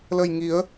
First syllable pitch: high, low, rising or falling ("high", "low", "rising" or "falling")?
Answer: low